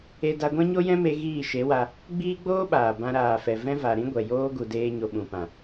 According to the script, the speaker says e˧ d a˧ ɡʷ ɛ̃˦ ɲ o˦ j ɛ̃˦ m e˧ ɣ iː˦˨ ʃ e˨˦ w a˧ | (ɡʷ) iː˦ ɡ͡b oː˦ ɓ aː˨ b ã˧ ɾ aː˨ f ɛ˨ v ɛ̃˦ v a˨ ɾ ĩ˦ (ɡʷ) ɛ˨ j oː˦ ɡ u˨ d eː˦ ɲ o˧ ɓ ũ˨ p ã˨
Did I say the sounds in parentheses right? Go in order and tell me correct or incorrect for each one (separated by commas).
incorrect, correct